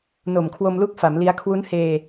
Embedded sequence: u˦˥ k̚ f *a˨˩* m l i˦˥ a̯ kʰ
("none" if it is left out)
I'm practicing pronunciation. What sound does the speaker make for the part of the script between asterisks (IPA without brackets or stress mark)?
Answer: a˩˦